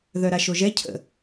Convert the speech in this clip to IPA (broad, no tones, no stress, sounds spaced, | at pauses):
ð œ ɾ a ʃ o ʒ ɛ cʰ ə̰